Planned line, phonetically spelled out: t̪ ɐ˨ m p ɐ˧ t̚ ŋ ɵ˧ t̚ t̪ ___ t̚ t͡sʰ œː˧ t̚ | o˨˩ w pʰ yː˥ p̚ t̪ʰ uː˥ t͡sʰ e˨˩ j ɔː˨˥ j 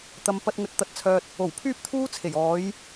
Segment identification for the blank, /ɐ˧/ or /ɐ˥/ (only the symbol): ɐ˧